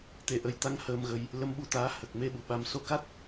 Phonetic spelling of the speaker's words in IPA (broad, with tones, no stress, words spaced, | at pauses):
t̪e˨˩˦ʔə˨˩jt̪a˧ŋ həː˧mɣə˧j | lə˧˥mɓu˧t̪aː˧˥ hə˨˩k̚me˧ ɓu˨˩ɓa˧m so˧˥ka˦˥t̚